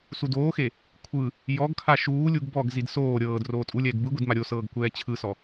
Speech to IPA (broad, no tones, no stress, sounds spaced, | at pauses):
s u d oː x e | kʷʰ ɯ | j ɔ ɡ kʰ a ʃ uː lʲ u ɡ b ɔ ɡ z i d s oː ɾʲ ɤː d r oː tʼ u lʲ ɛː ɡ b ɯ ɡʷ i d m a ɾʲ o s ɤː ɡ kʷ ɛː t͡ɕʰ ɯ s ɔ